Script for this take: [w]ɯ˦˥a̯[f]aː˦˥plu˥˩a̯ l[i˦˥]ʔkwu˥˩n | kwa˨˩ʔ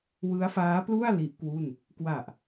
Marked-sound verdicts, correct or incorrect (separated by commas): correct, correct, correct